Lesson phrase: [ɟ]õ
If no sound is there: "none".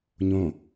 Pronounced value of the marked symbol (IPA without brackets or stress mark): ɲ